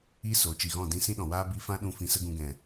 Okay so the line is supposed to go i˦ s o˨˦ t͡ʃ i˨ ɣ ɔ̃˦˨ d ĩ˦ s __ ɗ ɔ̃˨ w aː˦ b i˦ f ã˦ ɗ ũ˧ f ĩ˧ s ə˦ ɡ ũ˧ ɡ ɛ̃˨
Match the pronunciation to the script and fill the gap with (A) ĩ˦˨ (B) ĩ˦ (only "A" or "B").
B